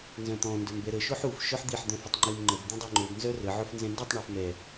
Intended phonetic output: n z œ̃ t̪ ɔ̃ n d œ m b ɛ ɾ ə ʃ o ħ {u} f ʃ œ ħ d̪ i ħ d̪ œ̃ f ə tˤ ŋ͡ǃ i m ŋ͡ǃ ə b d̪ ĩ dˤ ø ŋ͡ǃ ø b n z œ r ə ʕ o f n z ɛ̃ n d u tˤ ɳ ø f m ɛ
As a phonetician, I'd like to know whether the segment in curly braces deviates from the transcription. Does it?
no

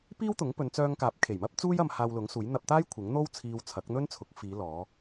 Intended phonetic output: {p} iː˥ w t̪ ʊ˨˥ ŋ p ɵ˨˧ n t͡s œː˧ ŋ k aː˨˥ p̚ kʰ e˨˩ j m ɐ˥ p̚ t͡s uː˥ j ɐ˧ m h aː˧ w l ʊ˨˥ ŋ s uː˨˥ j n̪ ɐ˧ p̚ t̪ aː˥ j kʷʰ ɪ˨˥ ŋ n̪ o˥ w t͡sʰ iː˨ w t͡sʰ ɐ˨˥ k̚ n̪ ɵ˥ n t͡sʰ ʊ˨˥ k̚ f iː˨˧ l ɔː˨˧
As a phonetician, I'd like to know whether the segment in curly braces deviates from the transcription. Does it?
no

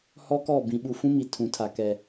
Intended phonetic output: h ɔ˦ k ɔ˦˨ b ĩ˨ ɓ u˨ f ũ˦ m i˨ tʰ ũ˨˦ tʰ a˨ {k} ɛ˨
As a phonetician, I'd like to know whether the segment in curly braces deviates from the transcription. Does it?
no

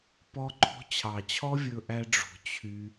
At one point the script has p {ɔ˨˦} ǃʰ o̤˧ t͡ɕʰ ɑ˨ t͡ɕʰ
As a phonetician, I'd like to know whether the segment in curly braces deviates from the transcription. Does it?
yes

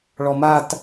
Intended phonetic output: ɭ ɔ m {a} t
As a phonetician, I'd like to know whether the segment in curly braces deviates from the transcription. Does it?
no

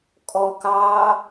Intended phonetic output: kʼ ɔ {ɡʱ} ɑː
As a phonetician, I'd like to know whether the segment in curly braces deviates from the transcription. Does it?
yes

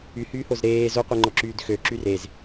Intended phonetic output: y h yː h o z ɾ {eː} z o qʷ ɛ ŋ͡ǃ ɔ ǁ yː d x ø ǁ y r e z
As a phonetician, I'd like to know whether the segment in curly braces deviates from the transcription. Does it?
no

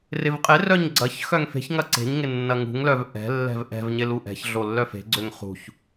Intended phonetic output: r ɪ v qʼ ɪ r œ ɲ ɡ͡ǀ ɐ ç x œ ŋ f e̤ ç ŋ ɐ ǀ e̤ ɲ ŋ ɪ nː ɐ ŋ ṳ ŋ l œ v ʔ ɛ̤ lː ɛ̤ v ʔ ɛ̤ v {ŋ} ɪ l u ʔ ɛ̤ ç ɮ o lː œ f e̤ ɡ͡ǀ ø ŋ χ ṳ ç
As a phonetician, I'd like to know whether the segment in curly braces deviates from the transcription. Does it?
yes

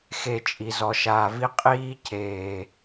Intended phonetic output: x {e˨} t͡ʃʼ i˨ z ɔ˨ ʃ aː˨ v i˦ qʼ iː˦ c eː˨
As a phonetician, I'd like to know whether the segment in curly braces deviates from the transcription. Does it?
no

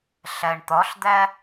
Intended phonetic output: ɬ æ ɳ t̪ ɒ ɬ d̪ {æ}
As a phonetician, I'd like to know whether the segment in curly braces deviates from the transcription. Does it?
no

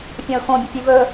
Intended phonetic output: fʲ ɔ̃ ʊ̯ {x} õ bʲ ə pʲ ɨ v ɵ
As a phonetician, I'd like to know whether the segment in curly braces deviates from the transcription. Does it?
no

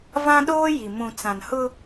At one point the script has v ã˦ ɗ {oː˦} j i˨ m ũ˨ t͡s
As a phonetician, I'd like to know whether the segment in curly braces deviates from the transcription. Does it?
no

